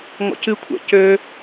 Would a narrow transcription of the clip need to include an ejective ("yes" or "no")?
no